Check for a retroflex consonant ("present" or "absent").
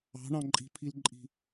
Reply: present